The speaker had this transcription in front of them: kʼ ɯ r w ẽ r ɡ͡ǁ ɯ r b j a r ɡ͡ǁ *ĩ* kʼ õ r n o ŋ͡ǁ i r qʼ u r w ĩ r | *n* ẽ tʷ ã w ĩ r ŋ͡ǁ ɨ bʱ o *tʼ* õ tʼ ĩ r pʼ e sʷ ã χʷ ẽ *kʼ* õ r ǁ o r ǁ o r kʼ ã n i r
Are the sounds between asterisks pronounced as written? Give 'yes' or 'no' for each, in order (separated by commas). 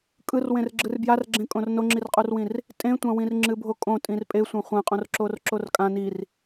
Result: no, no, no, no